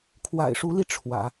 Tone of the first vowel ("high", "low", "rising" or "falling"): low